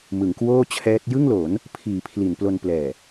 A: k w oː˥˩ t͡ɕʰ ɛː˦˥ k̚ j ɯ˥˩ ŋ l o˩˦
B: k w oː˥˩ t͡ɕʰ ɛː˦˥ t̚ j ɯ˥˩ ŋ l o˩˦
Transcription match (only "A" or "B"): B